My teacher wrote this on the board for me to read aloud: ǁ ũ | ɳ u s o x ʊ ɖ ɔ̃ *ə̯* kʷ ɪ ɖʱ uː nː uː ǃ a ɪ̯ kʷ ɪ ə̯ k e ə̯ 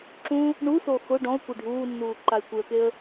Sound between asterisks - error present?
yes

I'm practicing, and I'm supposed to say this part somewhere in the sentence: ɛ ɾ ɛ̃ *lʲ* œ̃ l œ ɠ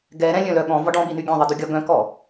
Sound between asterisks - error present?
no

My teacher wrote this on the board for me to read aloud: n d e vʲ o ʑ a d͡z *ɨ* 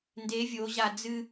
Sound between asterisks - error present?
no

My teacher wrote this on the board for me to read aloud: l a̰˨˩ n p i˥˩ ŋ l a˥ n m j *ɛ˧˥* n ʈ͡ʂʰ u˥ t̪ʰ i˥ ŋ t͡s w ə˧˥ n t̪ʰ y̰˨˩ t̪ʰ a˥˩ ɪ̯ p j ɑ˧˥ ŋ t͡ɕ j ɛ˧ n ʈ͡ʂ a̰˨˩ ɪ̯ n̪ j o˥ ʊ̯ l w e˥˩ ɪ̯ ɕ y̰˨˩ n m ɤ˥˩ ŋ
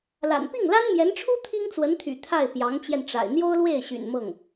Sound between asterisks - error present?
no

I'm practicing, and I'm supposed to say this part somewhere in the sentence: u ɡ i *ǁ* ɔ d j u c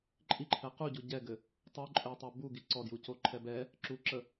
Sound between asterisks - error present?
yes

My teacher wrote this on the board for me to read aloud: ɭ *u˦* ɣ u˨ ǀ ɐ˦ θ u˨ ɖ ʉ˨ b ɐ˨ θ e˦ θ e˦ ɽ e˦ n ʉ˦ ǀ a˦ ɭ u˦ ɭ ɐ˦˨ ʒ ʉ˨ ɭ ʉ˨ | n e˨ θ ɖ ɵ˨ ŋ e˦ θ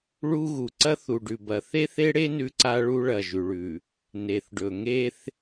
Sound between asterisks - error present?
no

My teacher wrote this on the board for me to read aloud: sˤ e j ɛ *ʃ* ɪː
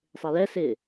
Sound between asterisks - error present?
yes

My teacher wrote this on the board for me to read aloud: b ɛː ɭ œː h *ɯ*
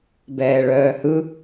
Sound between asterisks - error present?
no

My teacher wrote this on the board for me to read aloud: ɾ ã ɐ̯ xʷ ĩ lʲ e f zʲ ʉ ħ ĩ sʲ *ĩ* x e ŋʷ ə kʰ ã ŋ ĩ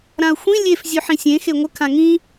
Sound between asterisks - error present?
yes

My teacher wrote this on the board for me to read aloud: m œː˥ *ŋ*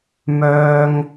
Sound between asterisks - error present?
no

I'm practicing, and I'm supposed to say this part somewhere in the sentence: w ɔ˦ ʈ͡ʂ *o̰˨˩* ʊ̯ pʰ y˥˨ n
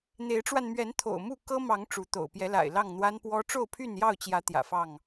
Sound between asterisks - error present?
yes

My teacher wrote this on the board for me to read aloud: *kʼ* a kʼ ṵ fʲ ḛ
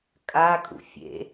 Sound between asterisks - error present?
no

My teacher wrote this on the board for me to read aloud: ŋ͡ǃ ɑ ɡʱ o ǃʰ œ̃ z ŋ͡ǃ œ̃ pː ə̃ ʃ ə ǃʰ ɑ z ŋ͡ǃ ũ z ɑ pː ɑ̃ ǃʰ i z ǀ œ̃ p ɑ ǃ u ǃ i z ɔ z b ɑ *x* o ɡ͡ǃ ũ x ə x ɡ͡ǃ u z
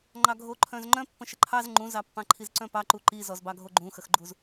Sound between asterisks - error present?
yes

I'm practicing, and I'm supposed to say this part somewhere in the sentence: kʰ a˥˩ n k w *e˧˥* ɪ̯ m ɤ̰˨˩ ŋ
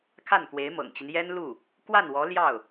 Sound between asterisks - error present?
no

